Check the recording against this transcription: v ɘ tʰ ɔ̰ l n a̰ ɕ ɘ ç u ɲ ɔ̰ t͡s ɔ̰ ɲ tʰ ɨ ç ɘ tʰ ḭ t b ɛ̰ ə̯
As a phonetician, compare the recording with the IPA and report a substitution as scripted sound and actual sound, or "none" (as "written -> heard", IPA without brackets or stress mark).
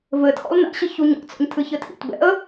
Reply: none